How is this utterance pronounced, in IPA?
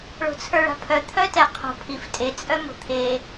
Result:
ɭ o̤ t͡sʰ ə˞ ɭ a̤ pʰ œ t̪ʰ œ t ɛ qʰ o̤ pʰ i f tʼ e t͡sʼ œ m o̤ t̪ʰ e

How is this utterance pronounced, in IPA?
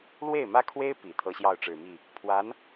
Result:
l w e˥˩ ɪ̯ m ä˥ kʰ w e˥ ɪ̯ p i˨˩ t̪ʰ ɤ˥ ɕ j ɑ˥˩ ʊ̯ ʈ͡ʂ ɻ̩˨˩ m i˥˩ | pʰ w a˧˥ n

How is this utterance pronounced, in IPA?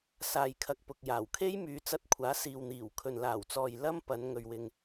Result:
s aː˨ j kʰ ɐ˨ k̚ p ʊ˨ k̚ j aː˨˩ w kʰ e˥ j m yː˨˧ t͡s ɐ˧ t̚ kʷʰ aː˨˥ s iː˨ w n̪ iː˨˩ w kʰ ɵ˨ n l aː˨˩ w t͡s ɔː˨ j l ɐ˥ m p ɐ˨˧ n ŋ ɵ˨ ɥ w ɪ˨ ŋ

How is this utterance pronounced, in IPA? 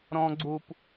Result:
ɾ ɔ̃ ɡ͡ǀ u p

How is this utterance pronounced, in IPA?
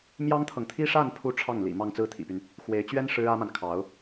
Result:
m j ɑ˥ ŋ t̪ʰ ɤ˨ ŋ t̪ʰ i˥ ʂ a˥˧ n pʰ u˥˧ ʈ͡ʂʰ ɑ˥˩ ŋ l ḭ˨˩ m ɑ˥˧ ŋ t͡s ɹ̩˥˩ t̪ʰ ḭ˨˩ p y˦ n | x w e˧˥ ɪ̯ t͡ɕ ɥ ɛ˥ n ʂ ɻ̩˥ ä˥ m a˨ n kʰ ɑ˧˥ ʊ̯

